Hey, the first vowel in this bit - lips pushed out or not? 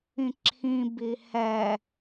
no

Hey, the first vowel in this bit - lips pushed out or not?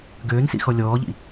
yes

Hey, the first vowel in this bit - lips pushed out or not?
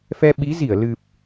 no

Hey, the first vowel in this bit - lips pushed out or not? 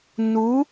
yes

